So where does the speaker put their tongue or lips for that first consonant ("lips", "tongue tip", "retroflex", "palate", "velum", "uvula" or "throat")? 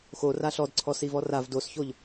velum